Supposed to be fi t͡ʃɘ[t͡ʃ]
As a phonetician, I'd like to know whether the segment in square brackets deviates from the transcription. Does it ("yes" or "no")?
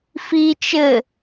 yes